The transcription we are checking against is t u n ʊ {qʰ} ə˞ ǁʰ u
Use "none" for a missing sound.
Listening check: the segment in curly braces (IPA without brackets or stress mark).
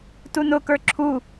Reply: k